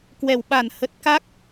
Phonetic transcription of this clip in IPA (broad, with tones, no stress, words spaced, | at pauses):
kwɛ˧˩w ɓa˧˩nhə˨˩t̚ka˦˥k̚